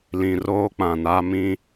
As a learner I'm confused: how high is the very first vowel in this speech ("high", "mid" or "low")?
high